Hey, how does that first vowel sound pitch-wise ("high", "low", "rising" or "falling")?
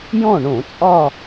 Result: falling